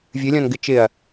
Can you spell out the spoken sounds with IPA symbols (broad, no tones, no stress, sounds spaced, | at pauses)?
vʲ ɨ lʲ ɔ̃ n ɡ ɪ t͡ʃ ɪ ɐ̯